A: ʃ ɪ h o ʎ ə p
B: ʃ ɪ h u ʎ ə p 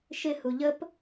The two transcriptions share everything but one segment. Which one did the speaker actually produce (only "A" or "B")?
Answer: B